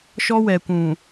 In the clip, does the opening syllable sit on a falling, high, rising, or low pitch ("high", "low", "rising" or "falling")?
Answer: high